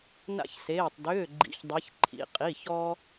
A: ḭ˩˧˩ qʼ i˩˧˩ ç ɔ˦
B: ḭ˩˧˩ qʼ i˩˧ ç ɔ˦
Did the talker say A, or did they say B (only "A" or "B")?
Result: A